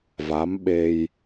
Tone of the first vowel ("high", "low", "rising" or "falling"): rising